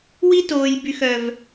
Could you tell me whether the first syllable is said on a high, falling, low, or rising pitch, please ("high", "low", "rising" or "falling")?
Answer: high